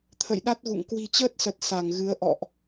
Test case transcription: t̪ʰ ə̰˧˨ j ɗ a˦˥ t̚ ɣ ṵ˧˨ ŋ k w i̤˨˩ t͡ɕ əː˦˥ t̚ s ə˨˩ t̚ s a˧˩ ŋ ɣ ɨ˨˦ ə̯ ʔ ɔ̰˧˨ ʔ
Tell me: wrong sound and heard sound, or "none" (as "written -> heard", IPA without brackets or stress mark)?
none